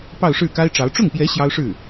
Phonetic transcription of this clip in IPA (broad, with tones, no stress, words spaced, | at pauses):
pɑ˥˧ʊ̯ʂɻ̩˥˩ka˥ɪ̯ʈ͡ʂɑ˧˥ʊ̯ ʈ͡ʂʊ˥˩ŋpjɛ˧˥ ɕjɑ˥ʊ̯ʂɻ̩˥˩